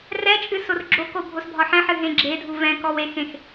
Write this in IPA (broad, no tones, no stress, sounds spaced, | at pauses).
r ɛ t͡ʃʼ ɨ s o r ɡ͡ǁ o k o bʱ o s bʱ ɒ ħ ɛ̃ ħ ɨ ɦ ẽ ɡ͡ǁ e dʱ u v ɛ̃ k ɔ w e x ẽ x